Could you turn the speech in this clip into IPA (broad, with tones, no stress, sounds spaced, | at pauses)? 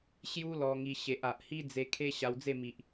ɕ j u˦ l ɔ˧ ŋ i˧ ɕ e˨ ʔ a˨ ʔ h i˦ d͡z e˧ kʰ e˦ ɕ a˧ w d͡z e˥˧ m i˨ ʔ